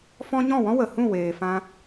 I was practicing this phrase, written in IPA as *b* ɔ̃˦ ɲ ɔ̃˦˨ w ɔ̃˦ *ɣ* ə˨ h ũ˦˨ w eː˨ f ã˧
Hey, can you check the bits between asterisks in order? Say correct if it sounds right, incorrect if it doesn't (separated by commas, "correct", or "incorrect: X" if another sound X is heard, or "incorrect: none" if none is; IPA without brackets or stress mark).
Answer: incorrect: f, incorrect: w